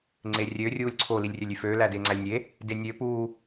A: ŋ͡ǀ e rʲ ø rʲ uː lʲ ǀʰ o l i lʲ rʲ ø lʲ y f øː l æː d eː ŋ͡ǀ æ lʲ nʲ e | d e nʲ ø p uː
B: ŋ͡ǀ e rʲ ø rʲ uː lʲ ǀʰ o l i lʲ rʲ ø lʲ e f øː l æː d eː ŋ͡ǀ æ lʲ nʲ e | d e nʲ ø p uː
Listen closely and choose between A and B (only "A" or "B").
A